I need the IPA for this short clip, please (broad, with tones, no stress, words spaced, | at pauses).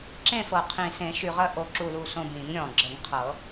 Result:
ǁẽ˦˨fɤ˨˩qʰĩ˨˩sẽ˨˩˦ ʃy˨˩ʁə˦˨ ʔo˦˨ǁu˦˨lu˦˨sõ˦˨ bĩ˨˩˦ŋɾʲɔ̃˨˩ɡ͡ǁə˨˩˦ŋ qʰɤ˨˩˦